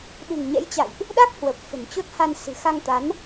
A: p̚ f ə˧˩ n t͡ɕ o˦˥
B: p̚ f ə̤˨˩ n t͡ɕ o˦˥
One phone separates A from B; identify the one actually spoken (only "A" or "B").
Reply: B